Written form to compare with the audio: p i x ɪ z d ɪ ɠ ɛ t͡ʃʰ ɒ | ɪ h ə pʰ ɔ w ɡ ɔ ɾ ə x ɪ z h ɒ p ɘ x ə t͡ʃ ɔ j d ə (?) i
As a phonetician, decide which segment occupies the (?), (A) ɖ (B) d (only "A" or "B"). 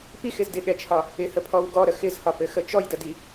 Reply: B